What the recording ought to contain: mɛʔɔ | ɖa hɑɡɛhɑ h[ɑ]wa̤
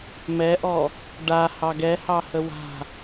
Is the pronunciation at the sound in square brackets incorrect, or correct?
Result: incorrect: ə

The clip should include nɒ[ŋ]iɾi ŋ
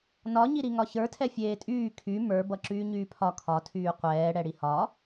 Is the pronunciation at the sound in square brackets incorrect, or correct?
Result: incorrect: ɲ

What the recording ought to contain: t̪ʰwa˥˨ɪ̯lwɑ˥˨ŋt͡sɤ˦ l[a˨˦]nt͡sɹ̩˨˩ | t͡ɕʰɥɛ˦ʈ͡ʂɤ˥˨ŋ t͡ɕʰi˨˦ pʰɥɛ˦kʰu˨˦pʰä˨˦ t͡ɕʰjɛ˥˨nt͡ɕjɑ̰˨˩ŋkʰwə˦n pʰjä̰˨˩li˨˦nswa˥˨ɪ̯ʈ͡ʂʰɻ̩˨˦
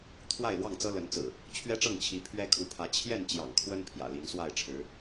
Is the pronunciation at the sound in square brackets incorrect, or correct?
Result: incorrect: ə˨˦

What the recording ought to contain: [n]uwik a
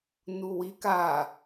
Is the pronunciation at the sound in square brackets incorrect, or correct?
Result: correct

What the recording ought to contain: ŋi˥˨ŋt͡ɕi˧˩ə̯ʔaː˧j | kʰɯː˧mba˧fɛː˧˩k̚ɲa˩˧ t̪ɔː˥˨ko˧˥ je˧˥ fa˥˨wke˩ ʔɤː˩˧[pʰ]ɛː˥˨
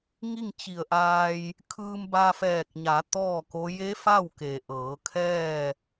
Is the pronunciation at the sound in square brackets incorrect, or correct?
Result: incorrect: kʰ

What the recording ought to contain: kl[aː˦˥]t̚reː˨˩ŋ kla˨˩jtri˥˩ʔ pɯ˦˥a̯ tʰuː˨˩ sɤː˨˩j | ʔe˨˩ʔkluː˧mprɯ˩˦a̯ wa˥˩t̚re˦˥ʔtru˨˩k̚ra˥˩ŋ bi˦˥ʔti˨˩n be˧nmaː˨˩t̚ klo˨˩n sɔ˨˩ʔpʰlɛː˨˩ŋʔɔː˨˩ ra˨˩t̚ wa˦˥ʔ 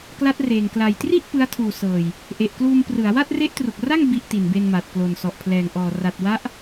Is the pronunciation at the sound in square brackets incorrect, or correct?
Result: incorrect: a˦˥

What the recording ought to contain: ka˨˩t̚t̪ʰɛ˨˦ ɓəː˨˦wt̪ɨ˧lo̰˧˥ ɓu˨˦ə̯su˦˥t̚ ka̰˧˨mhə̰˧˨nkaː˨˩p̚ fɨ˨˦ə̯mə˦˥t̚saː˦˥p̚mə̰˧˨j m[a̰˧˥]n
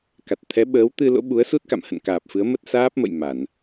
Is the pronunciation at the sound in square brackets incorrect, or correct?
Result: incorrect: a˧˩˨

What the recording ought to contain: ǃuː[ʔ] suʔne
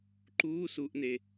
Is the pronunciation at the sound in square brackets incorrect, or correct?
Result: incorrect: none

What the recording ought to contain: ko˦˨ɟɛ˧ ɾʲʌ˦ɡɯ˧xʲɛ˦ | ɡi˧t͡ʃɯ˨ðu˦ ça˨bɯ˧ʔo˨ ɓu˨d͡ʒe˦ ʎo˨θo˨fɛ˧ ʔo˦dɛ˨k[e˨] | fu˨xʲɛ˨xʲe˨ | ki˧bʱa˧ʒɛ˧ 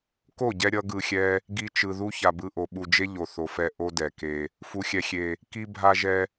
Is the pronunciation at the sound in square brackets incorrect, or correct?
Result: incorrect: e˧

